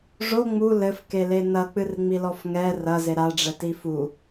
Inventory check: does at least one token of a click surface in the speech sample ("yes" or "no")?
no